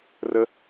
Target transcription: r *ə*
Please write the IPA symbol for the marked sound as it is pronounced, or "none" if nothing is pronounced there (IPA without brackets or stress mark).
ə